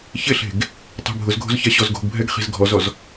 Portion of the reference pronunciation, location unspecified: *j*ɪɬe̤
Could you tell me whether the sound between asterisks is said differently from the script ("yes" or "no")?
yes